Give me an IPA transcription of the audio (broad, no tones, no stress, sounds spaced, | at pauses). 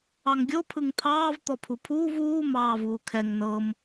ɑ ŋ ɡʲ o pʰ ɯ ŋ t̪ʰ ɑː v t̪ ɔ pʰ u pʰ uː v uː m ɑː v uː kʰ ɛ ŋ n ɤ m